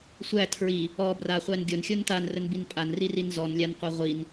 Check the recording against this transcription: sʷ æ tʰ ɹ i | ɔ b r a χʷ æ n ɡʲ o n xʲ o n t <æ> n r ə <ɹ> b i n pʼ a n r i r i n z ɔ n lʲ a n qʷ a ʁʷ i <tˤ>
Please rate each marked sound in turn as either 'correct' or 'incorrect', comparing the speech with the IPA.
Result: incorrect: a, incorrect: n, incorrect: n

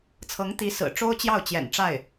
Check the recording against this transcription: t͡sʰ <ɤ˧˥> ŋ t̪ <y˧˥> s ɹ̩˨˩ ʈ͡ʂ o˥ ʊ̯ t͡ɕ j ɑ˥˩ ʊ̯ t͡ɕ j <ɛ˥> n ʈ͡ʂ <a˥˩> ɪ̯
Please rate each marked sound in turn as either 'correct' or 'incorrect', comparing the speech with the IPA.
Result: correct, incorrect: i˧˥, incorrect: ɛ̰˨˩, correct

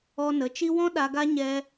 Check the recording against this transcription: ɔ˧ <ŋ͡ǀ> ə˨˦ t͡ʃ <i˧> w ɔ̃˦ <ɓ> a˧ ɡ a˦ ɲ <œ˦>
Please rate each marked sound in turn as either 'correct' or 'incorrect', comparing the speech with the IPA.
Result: incorrect: n, correct, incorrect: ɗ, incorrect: ɛ˦

